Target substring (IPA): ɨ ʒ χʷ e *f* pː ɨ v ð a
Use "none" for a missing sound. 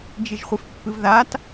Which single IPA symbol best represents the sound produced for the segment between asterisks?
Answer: f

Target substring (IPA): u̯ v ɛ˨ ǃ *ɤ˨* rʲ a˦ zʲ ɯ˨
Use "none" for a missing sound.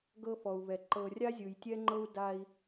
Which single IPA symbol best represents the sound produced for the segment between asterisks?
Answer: ɤ˨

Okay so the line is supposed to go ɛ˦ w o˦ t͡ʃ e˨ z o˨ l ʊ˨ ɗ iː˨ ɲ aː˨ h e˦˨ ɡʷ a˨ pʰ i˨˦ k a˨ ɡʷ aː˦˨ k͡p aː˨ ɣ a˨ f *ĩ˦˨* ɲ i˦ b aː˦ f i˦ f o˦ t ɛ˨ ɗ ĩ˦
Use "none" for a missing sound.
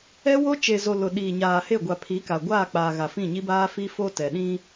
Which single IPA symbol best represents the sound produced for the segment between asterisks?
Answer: ĩ˦˨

